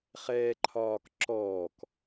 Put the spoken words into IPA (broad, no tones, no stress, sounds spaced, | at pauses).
χ ɛː ǃʰ ɒː k ǁ ɔː k